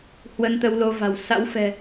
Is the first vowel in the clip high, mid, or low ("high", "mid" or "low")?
mid